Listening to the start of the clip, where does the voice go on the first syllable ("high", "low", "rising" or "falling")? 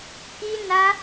high